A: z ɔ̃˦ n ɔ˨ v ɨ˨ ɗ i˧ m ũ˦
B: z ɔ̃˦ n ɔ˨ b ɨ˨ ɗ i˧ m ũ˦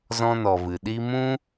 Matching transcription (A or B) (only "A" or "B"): A